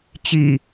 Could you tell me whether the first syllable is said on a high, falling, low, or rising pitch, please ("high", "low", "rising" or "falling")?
low